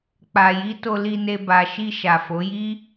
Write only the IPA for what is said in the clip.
k͡p a˨ j i˨˦ t o˧ l i˧ n e˧ b a˨ ʃ i˧ ʃ a˨ f o˨˦ j i˦

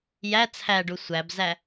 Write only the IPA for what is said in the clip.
j æ t͡sʰ æ ɖ u sʷ æ b z æ

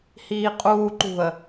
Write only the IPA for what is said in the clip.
h iː qʼ uː ǃ ṳ ə̯

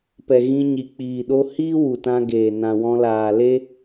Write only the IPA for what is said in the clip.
p ɛ˨ ɣ ĩ˧ ɲ i˨ k͡p iː˨ ɗ o˧ h iː˦ w u˨ t ã˧ ɡ eː˨ n ã˨ w ɔ̃˧ l aː˨ l e˦

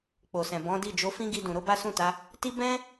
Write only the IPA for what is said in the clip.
k͡p o˨ s ɛ̃˨ b ɔ̃˨˦ d i˦˨ d͡ʒ o˨˦ f ĩ˦ ɡ i˧ d ũ˨ ɾ o˧ b a˦ s ũ˦˨ t a˨˦ | t i˦ b ɛ̃˦

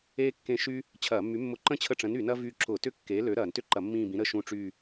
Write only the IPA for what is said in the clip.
eː˥ kː ẽ˦˨ ʃ yː˥ | t͡ɕʰ ɐː˧˩˧ mː y˨˥ mː ʊ˦˨ ǃ ə̃˥ t͡ɕʰ ə˦˨ ʈ͡ʂ ə̃˨˥ n y˧˩˧ n ɐː˥ v yː˦˨ ǁ ʊ˧˩˧ t ʏ˥ kː eː˨˥ l ø˨˥ ɾ ɐː˧˩˧ n t ʏ˥ ǃ ɐ˧˩˧ mː ĩː˦˨ b ĩ˨˥ ɾ ə˦˨ ʃ ũ˦˨ ʈ͡ʂ yː˦˨

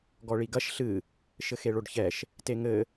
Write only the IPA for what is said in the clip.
ɡ ɔ ɭ i ɡ ɐ ʃ ɬ ɨ | ʃ ɘ x e ɭ o ɖ ç ɛ ʃ | t e ŋ ɘ

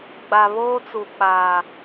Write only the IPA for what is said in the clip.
ɡ͡b a˨ β oː˦ t͡s u˨ k͡p aː˨

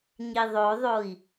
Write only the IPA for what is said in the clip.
ɲ i ðˤ o ðˤ o i̯

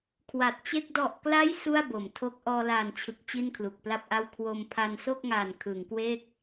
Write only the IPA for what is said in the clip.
kʰ w a˨˩ t̚ t͡ɕ e˥˩ k̚ d ɔ˨˩ ʔ k l a˦˥ j s u˥˩ a̯ b o˩˦ m tʰ o˦˥ k̚ ʔ ɔː˧ l aː˨˩ n t͡ɕʰ ɯ˨˩ k̚ t͡ɕ i˥˩ n kʰ l u˨˩ k̚ p l a˥˩ p̚ ʔ a˥˩ w kʰ w o˧ m pʰ a˧ n s o˥˩ k̚ ŋ aː˨˩ n kʰ ɯː˩˦ ŋ k w e˥˩ k̚

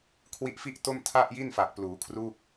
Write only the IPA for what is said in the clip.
kʰ w i˦˥ ʔ f i˥˩ ʔ t o˥˩ m tʰ a˥˩ ʔ j i˥˩ n f a˨˩ k̚ p l uː˩˦ kʰ r u˥˩ k̚

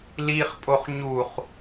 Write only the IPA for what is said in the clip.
l i χ pʼ o χ ɲ u χ

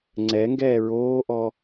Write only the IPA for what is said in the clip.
ŋ͡ǀ ɛ ŋ ɡ ɛː ɹ oː ʔ ɔ

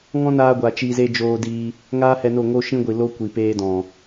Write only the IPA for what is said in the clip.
ŋ ɔ̃˦ n aː˧ ɡʷ a˨ t͡ʃ i˧ z e˦ d͡ʒ oː˧ d iː˧ | ŋ aː˦ h ɛ˧ n o˦˨ ŋ o˦ ʃ ĩ˦ ɡʷ i˨ l o˦ kʷ i˨ p eː˦ d ɔ̃˨

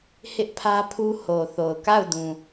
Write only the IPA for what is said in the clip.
h ɪ˦ ʔ pʰ ä˦ pʰ u˦ h o˨ θ o˨ ʊ̯ k a˦˨ ʊ̯ d ũ˨

